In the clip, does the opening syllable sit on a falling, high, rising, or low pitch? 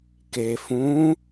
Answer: low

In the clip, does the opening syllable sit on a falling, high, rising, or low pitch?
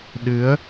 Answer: rising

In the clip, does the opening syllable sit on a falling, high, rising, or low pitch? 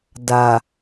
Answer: low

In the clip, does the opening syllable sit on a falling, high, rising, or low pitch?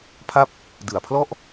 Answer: falling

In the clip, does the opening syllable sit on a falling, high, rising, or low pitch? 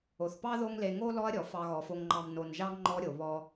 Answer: low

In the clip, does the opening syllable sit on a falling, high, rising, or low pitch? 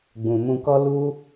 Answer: low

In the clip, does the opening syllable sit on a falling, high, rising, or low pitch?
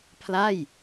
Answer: falling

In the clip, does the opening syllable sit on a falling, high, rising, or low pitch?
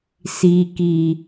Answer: low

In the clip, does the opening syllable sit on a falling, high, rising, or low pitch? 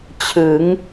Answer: rising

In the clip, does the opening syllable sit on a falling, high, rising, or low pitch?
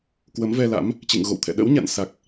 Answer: rising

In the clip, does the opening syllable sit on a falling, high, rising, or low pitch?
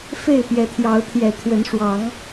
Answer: falling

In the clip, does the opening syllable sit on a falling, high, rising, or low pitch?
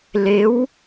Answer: rising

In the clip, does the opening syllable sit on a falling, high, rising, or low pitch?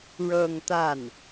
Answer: falling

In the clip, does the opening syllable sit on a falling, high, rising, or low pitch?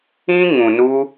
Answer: high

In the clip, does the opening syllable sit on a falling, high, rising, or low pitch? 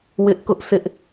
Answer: high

